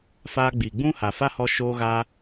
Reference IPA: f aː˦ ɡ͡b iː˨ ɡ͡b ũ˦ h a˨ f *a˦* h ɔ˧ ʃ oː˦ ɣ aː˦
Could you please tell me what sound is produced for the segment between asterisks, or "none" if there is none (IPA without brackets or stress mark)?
a˦